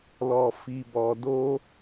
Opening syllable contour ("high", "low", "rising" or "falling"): low